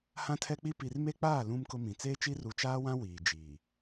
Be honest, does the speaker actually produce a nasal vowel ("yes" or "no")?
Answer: yes